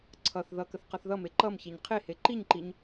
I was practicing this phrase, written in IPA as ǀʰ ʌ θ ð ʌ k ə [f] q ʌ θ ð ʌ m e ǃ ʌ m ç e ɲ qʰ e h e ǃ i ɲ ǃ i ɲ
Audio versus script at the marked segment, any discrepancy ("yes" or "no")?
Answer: yes